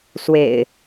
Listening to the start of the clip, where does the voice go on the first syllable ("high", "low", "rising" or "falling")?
low